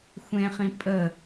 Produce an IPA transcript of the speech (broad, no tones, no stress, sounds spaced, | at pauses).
xʷ ẽ χ ĩ pʼ ə